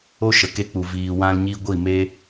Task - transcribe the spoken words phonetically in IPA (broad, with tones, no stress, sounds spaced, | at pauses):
o˦ ʃ ə˨ k e˧ k͡p u˨ v iː˨ w ã˧ l ɲ i˧ ɡʷ i˦˨ m e˦